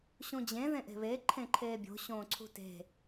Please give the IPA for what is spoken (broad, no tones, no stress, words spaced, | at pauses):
ɕũd͡ʑẽ ðẽʔe̤βe ǃʰẽǃʰeːbʲo̤ ɕõːǀʰṳte̤